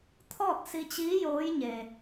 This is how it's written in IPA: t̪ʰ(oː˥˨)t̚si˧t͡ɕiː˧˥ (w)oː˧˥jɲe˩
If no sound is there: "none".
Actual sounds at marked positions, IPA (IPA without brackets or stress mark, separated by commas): ɔː˥˨, j